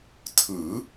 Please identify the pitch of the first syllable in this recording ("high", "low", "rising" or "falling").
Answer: rising